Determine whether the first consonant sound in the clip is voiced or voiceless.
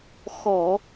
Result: voiceless